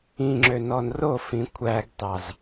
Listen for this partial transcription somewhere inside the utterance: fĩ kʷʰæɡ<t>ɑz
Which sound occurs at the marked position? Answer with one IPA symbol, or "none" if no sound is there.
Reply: t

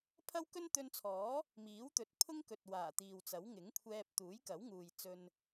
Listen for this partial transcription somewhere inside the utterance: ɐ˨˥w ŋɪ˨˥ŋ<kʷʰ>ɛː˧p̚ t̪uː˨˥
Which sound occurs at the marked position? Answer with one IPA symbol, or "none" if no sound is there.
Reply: kʷʰ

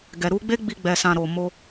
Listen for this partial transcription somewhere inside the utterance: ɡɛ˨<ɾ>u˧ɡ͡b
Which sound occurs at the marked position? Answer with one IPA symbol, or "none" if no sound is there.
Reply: ɾ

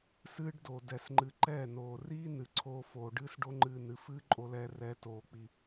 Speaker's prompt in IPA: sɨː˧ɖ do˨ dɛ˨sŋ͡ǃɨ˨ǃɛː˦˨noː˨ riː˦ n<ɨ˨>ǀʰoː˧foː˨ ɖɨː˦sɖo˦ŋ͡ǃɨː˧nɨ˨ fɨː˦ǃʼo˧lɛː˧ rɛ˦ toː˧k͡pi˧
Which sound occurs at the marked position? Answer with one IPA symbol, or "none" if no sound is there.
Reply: ɨ˨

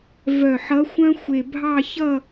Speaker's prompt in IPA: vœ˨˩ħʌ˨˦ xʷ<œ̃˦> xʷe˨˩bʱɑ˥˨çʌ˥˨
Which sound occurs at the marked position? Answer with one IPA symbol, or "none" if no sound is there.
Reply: œ̃˦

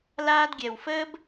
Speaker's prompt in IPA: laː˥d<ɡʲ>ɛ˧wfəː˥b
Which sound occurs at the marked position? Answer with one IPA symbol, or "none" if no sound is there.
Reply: ɡʲ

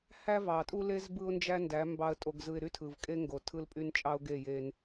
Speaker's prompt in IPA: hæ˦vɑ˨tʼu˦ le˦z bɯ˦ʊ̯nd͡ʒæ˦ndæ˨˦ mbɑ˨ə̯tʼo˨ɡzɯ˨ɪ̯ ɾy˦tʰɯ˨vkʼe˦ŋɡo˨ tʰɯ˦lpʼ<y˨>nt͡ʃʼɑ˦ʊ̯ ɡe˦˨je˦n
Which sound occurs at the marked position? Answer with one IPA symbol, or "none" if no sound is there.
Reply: y˦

